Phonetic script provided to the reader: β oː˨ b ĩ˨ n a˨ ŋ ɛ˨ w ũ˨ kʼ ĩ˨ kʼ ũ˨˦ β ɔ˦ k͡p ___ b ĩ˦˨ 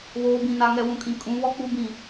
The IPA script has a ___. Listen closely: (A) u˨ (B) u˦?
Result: B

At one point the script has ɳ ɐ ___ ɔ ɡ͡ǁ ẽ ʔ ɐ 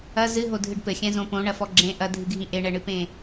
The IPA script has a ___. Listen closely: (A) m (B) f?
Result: B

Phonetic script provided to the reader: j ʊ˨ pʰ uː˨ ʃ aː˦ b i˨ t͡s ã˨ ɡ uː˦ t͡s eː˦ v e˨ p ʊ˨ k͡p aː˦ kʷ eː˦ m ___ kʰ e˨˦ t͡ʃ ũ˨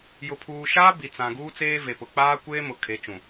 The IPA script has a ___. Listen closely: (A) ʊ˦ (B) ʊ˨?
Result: B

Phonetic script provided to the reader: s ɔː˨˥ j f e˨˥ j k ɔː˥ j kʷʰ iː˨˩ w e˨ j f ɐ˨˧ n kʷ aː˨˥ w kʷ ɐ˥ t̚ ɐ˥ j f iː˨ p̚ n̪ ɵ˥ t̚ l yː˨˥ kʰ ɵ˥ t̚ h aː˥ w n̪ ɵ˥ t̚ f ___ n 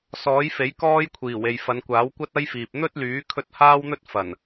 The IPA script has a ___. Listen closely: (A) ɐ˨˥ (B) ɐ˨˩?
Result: B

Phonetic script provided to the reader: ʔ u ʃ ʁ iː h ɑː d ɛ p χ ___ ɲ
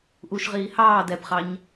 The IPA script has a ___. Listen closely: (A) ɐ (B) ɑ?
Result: B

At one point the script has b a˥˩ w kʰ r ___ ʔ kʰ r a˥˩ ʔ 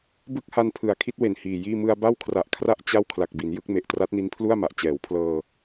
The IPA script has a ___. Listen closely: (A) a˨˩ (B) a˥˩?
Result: A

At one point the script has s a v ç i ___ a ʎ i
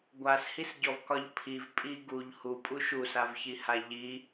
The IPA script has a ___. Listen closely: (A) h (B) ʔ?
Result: A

